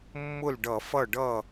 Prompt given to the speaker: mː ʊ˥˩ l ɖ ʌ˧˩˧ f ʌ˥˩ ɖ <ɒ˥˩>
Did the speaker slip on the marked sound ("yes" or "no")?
yes